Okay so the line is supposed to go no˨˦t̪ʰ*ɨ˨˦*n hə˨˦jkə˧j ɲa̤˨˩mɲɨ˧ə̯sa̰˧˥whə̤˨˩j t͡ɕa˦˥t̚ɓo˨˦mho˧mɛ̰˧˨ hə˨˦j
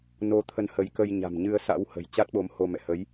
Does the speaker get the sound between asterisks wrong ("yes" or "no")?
yes